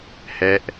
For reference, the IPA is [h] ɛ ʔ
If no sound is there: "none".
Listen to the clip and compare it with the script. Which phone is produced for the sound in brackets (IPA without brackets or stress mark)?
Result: h